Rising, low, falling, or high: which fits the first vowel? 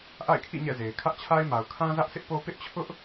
falling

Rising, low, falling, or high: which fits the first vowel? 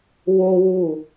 high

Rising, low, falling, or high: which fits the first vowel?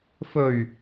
low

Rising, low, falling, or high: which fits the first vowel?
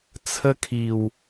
high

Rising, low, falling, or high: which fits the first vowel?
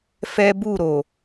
high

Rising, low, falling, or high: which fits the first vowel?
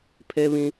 high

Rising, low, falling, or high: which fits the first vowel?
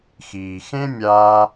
low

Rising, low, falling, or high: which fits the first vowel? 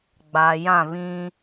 low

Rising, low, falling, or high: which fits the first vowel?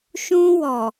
high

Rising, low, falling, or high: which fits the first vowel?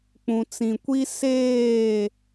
low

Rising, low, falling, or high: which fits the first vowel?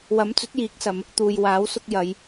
rising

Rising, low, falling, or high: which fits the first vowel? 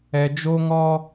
low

